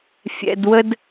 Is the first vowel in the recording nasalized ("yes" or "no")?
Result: no